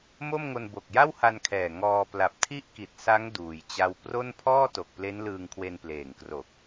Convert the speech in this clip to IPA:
mo˥˩mŋo˧n bo˨˩k̚ja˥˩wha˧nkʰɛː˨˩ ŋɔː˧ pla˨˩p̚tʰi˦˥ʔki˨˩t̚ sa˦˥ŋ duː˧jt͡ɕa˥˩w pro˥˩n pʰɔː˥˩to˨˩k̚ple˦˥n lɯː˧ŋkʰwe˧npleː˨˩ŋkro˨˩k̚

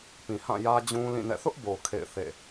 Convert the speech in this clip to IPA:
pĩ˨hã˦˨ jä˦d͡ʑũ˦lĩ˦˨nɛ̰˦˨ θʊ˦ʔbo˨ kʰḛ˦˨ɪ̯θḛ˦˨

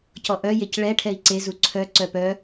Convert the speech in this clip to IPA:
cɔʔœ jecɭɛ ʈʰɛi̯ǀe zuǀʰœ ǀœpœ

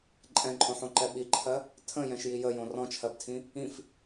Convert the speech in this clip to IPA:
ǃʼɛ̃ǃʼõħõǃɛ ɓiǃʰɜ | tʰə̃jɛ̃ʃji jəjõ rɔ̃t͡ʃʰɜbtʰĩ | ĩf

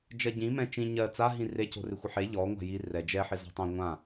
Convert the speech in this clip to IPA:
d͡ʒɜɟĩmɛ̃ t͡ʃĩ ɲɜ t͡saɦĩ reco̤ rɪxʷɪħe ʎɔ ŋʷa̤ji rɛ d͡ʒɛħɪ zɔ̤tˤẽ ŋʷã

